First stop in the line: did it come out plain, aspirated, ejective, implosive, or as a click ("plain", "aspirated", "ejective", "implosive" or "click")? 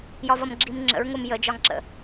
click